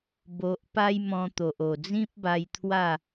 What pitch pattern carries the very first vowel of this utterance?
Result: low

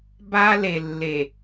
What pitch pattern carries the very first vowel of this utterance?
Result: high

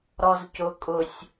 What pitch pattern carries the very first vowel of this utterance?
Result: low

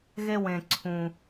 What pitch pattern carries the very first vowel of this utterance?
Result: high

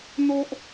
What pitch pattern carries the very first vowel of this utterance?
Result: high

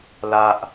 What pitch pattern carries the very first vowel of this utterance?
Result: high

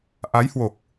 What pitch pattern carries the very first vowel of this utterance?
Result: rising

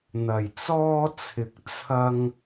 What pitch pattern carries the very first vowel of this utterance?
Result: low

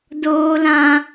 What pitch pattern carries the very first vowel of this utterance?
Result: high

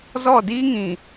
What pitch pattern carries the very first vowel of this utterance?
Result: falling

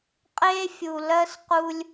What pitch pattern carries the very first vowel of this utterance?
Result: high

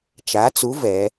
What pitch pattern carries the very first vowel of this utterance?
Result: rising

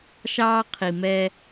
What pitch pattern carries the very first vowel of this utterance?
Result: high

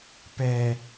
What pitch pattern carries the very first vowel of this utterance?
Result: low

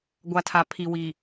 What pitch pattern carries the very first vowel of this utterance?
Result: low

